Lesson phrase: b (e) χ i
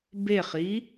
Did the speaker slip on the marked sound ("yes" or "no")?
no